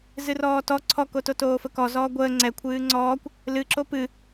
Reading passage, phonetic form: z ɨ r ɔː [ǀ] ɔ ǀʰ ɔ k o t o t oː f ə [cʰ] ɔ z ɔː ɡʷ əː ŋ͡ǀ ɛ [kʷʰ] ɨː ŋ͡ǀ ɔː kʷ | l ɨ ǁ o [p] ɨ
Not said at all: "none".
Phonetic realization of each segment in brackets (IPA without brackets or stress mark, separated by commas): t, k, kʷʰ, p